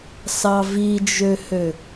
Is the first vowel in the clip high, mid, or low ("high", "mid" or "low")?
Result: low